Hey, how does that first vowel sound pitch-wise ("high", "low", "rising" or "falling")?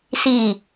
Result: falling